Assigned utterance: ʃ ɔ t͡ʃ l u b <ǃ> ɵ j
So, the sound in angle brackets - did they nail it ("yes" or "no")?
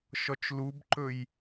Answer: yes